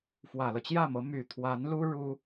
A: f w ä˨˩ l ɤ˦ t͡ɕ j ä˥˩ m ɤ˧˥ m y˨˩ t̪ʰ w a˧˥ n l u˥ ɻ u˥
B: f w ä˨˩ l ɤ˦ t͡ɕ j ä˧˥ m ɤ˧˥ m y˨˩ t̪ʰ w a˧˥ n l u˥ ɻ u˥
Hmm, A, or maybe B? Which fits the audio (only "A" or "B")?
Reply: A